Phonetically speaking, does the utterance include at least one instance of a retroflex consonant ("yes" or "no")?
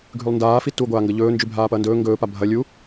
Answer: no